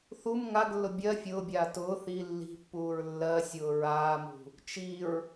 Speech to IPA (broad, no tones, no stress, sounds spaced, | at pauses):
θ u m ŋ a ɡ lː ʊ bʲ ɜ fʲ ʊː bʲ aː t ʊː θ i lː i̤ pː uː ɹ lː ɜ sʲ ʊː ɹ aː m ṳ | t͡ʃ i ɹ